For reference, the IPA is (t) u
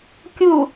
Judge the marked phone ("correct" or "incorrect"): incorrect